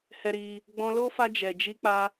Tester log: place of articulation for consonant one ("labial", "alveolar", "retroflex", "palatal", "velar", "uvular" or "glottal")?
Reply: glottal